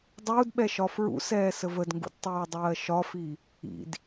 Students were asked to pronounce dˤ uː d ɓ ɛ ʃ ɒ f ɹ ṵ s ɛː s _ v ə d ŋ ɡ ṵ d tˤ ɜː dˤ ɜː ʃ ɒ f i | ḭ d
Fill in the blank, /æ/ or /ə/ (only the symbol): ə